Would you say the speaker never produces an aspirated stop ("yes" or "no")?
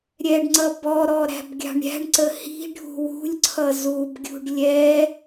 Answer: no